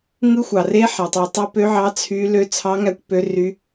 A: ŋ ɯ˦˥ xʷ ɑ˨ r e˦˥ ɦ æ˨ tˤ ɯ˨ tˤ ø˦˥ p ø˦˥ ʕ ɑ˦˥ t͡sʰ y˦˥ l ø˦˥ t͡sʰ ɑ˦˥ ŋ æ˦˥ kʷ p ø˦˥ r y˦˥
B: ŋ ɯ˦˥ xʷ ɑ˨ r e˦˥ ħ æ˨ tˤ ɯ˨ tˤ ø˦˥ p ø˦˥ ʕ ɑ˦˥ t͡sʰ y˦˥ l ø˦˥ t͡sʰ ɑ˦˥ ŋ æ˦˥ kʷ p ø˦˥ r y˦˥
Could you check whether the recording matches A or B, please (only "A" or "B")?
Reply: B